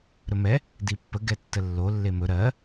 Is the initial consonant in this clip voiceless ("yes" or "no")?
no